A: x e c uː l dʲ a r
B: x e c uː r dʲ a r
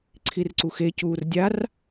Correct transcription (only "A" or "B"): B